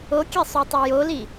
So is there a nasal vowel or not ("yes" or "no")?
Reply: no